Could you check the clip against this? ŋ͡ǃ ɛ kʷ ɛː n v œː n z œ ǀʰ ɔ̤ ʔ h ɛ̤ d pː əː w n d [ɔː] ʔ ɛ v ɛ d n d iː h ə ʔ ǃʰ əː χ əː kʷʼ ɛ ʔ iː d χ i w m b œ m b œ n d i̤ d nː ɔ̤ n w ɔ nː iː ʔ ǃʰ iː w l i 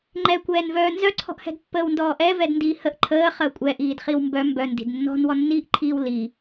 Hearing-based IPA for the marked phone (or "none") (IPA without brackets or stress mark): ɔː